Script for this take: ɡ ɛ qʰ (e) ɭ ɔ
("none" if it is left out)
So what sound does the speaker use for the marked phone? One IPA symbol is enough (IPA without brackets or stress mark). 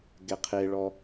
e